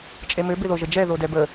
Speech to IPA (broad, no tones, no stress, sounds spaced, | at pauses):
t͡ʃʼ e m ø b ɪ ð o ʒ ə d͡ʒ ɛ ð o d ɛ b ə